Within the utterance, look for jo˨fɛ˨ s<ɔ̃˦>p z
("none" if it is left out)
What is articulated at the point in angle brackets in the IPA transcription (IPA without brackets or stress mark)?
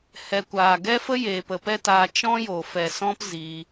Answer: ɔ̃˦